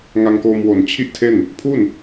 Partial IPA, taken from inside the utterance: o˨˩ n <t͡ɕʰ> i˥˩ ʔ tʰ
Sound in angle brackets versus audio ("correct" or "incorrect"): correct